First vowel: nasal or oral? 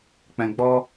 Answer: nasal